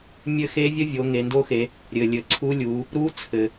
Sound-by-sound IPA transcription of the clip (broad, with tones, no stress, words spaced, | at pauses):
mʲɘ˦˥xe˦˥vʲə˦˥vʲo˩˧ ŋe˩˧ndo˦˥xe˩˧ | ɾʲɘ˩lʲɘ˩ ǀʰu˦˥lʲu˩˧ | ɾu˦˥t͡sʰɘ˩